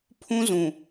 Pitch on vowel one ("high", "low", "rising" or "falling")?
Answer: high